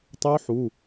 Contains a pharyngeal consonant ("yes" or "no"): yes